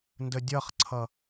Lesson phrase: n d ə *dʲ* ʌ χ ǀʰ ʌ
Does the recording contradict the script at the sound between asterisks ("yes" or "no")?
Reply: no